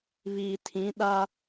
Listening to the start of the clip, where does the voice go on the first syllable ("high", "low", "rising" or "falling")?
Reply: low